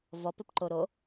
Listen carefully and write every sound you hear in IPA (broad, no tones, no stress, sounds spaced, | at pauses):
v ɔ p ɪ p ǃ o ɾ o